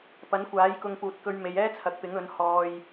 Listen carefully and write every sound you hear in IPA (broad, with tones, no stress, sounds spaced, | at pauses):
p ɐ˨˥ n kʷ aː˨˥ j k ʊ˧ ŋ p uː˨ t̚ k ɵ˧ ɥ m e˨˧ j ɛː˥ t͡sʰ ɐ˨ k̚ p ɪ˨˥ ŋ ɵ˨˥ n h ɔː˧ j